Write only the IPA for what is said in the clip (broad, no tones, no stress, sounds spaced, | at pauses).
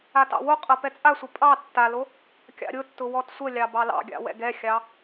a t ɑ̰ w o qʼ ɤ p ɛ t͡sʼ a sʷ ə pʼ ɑ tː a l o | kʲ ɑ̰ ɾʲ ʊ tː ʊ w ɔ t sʷ ə lʲ ɑ b ɑ l ɑ̰ ɡʲ ɑ̰ w ɛ̰ ɡ ɛ xʲ ɑ